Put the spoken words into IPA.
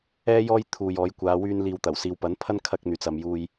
ɛː˥ j ɔː˥ j t̪ʰ uː˨ j ɔː˨˧ j kʷ aː˨˧ w yː˧ n l iː˨ w t̪ ɐ˨˩ w s iː˨ w p ɐ˨˥ n pʰ ɐ˥ n kʰ ɐ˥ k̚ n̪ yː˨˥ t͡s ɐ˧ m j uː˧ j

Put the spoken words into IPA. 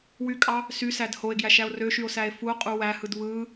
w y kʼ ɑ | s y s æ d h o e̯ ɡ j æ ʃ æ o̯ r ø ʃ y o̯ s æ e̯ f u o̯ qʼ u w æ h ɯ d β ɯ

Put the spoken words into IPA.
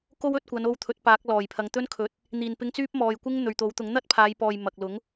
k o˥ w ɵ˧ t̚ kʷ ɐ˨˧ n o˧ w t̪ʰ ɵ˨˥ t̚ p aː˨˥ k̚ l ɔː˨˩ j pʰ ɐ˨˧ ŋ t̪ ɵ˥ n kʰ ɵ˨˥ t̚ | n̪ iː˨˩ n p ɪ˧ ŋ t͡s yː˥ p̚ m ɔː˨ j kʷ ɪ˥ ŋ n̪ ɵ˨ ɥ t̪ o˨˥ w t̪ ʊ˨˥ ŋ n̪ ɐ˥ t̚ pʰ aː˨˧ j p ɔː˨ j m ɐ˨ k̚ l ʊ˨˥ ŋ

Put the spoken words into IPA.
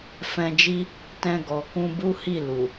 f ɛ̃˧ d͡ʒ i˦ | t ɛ̃˧ ɡ ɔ˨ k ũ˧ b u˦ h i˦˨ l u˨

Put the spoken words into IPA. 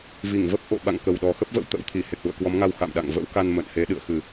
v i˧˩ ŋ v ə˦˥ p̚ ʔ o̰˧˨ ɓ a̰˧˨ ŋ k ə˨˩ w ɗ ɔ˨˩ x ə˦˥ p̚ v ə̰˧˥ w t̪ ə̰˧˥ w t̪ʰ i˧˩ h e˨˩ k̚ l ṵ˧˨ ə̯ k w ɔ˨˦ m ŋ a˧ w x a̰˧˨ m ɗ a̰˧˨ ŋ v ə̰˧˥ w k a˧ n m ə̰˧˨ n h e˨˦ ɗ ɨ̰˧˨ ə̯ x ɨ˨˩

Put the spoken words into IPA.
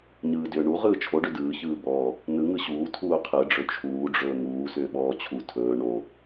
ɲ ɯː d ʏː ɳ u ʁ ɯː t͡ʃʰ o ɖ ʏ d ɯː ç ɯː b ɔː | n ɯ ŋ ɯ ɕ uː tʰ uː qʰ ɯ ɖ͡ʐ ɵ t͡ʃʰ uː ɖ͡ʐ ɵː ŋ uː s ʏː ɓ ɔː t͡ɕʰ u tʰ ɵː ɳ o

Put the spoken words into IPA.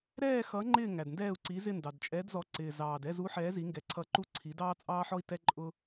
ɾ ɛː˦˨ x ʌ˨˥ ŋ͡ǃ ɪː˦˨ ŋ æ˨˩ d n d ɛː˦˨ u̯ ǀ i˨˥ z ɪ˦˨ n d ɑ˨˩ d t͡ʃʼ ɛː˨˥ d z ɔ˨˥ ǀ ɪː˨˩ z ɑː˨˩ d ɛ˦˨ z u˨˥ ħ ɛː˨˥ z i˨˥ ŋ ɡ ɛ˨˥ ǀʰ ʌ˦˨ ǃ u˦ ǀʰ i˨˥ d ɑː˦ t͡sʼ ɑː˦ ħ ɔ˦ i̯ t ɛ˦ ǃʼ ʊ˦

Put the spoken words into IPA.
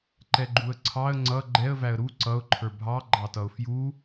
ǃ ɛ ɡ͡ǃ u ə̯ ǀʰ ɑ ə̯ ŋ͡ǀ ʌ ɡ͡ǃ ɛ ə̯ v æ ə̯ ɾ u ǀ ʌ ʊ̯ ǃʰ ə˞ bʱ ɑ ɡ͡ǃ ɑ t ʌ ʊ̯ f j u

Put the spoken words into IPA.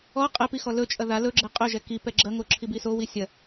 ɔ qʼ ɛ p i x ɔ l ɵ t͡ʃʼ ɐ ð a l ɵ ɡ͡ǁ ɛ qʼ ɵ ʒ ɛ k i p ɛ ɡ͡ǁ ɐ ŋ o ǁʰ i b i s o w i sʲ ɐ

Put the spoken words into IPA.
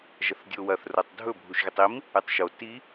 ʒ ɐ θ dʲ o w ɐ θ r o tˤ dʱ ɵ bʱ u ʃ ɣ e tˤ i m | ɨ tˤ ʃ o t i

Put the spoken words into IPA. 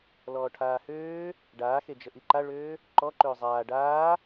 l ɔː ʈʰ aː h øː | ɖ aː x e d͡ʒ ə ʔ i ǃ a ɭ øː | ǃ ɔ ǃ øː zˤ aː ɖ aː

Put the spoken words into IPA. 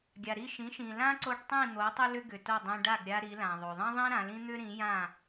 ɡʲ a˩ ɾ i˥˩ ʃ ĩ˩˥ ʃ ĩ˩ l ã˥ ǀ o˧ ɖ tˤ ĩ˥˩ n̪ o˩˥ tˤ ʏ˥ l ʏ˥ ɡ ʏ˩ t o˥˩ dˤ ĩ˧ ɖ a˥˩ ɡ ɾʲ a˧ ɾ i˩˥ l ã˩ ðˤ o˩ ðˤ ĩ˥ ðˤ ĩ˥ ɾ ã˩˥ l ĩ˥ n̪ ʏ˥ ɾ ĩ˩˥ j ã˥˩

